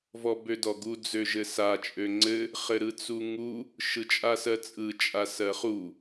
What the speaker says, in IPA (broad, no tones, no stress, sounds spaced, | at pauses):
v ɔ b ø d ɔ ɡ u d͡z ø ʒ ɘ s a t͡ʃʼ ø ŋ͡ǀ ɘ | χ ɘ ɾ ɯ t͡s u ŋ u | ʃ ɯ t͡ʃʼ a s ɜ t͡sʼ ɯ t͡ʃʼ a s ɜ χ u